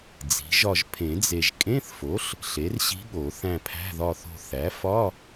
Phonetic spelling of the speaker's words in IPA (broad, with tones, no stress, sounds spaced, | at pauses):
d͡z i̤˩˥ ʒ ɒ˦˨ ʒ pʰ ẽ˨˩˦ d͡z e˨ ʒ kʼ ẽ˧˥˧ θ f o˩˥ ɬ | ɬ e˩˥ r ɕ i̤˧˥ ɠ o˨˩˦ θ æ̃˦˨ pʰ æ̤˧˥˧ ð ɒ˦˨ θ o̤˦˨ θ æ˩˥ f ɒ˧˥˧